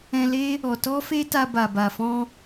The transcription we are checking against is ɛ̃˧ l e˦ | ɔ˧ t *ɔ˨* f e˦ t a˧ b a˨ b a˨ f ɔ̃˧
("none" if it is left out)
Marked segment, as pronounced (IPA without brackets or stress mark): ɔ˦